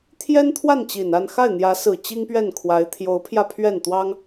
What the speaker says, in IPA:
t̪ʰ j ɛ˥ n t̪ʰ w a˥˩ n t͡ɕ i˨˩ n a˥˧ n x a˥˩ ɪ̯ n̪ j ä˧˥ s ɹ̩˨˩ t͡ɕ i˥ ŋ p ɥ ɛ˥˩ n kʰ w a˧˥ ɪ̯ t̪ʰ j o˧˥ ʊ̯ pʰ j ä˧ pʰ ɥ ɛ˥˩ n t̪ w ɑ˥ ŋ

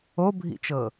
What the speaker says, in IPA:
o bʱ ḭ t͡ʃ ɤ

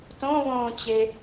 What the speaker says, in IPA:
t õ v õː t͡ɕ e

